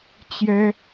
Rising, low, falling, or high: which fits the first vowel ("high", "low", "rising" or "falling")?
high